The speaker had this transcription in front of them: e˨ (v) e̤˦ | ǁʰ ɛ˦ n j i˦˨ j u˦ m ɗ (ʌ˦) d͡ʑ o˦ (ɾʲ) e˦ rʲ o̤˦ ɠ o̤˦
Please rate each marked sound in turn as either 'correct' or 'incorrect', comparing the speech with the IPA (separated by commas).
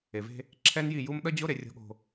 correct, correct, incorrect